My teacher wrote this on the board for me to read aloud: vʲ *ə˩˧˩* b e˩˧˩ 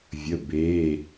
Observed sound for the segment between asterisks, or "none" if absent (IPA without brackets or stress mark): ə˩˧˩